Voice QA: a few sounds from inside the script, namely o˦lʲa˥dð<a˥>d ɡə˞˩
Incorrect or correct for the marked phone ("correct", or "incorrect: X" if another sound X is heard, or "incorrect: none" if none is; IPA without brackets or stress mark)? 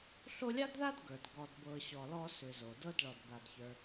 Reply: correct